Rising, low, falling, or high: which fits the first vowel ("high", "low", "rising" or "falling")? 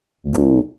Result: low